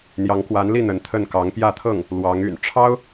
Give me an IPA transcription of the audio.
n̪ j ɑ˧˥ ŋ k w a˧˥ n l i˥˩ n̪ ə˧˥ n t̪ʰ ə˥˩ n k ɑ˧˥ ŋ p j ä˥˧ t̪ʰ ɤ˥˩ ŋ | l w ɑ˧˥ ŋ y̰˨˩ n ʈ͡ʂʰ ɑ˥ ʊ̯

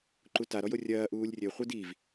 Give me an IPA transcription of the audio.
ǃ u t a ɾ ɔ j o rʲ ɐː ʔ uː lʲ rʲ ɘ χʷ ɨ d i v

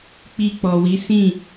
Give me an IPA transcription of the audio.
k͡p i˧ k͡p ɔ˨ w i˨˦ s ĩ˦˨

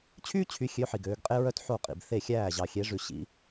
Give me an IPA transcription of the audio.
t͡ɕʰ yː˥ t͡ɕʰ y˨˦ xʲ ø˨˦ ħ i˨ ɡ øː˨˦ ɡ qʼ e˥ ɹ œ˥ t ħ o˥˩ qʼ ḭ˨ b θ e˥˩ xʲ æː˥˩ ʑ ɑ˨ xʲ e˨˦ ʐ ʉ˨ ɕ ḭ˨˦

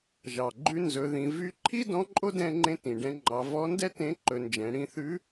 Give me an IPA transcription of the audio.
ʒ ɑ˩ ɡ͡ǃ ʉ˧ n z ɵ˩˧ ð ĩ˩˧ v y˧˥ ǃʰ i˥ d ɔ̃˧˥ ǃʼ o˥ d ɛ̃˧ ŋ͡ǃ ẽ˧ t ĩ˩ ɖ ɛ̃˧ ŋ͡ǃ ɑ˩˧ v ɔ˧˥ n d ɛ˥ t ẽ˧˥ ǃ ɵ˩˧ n d͡ʒ ɛ̃˩˧ ɽ ĩ˧ θ ʉ˧˥

